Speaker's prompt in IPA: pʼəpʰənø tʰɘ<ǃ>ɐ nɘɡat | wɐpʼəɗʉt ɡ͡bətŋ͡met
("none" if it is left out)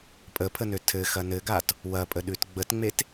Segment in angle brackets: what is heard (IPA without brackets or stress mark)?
x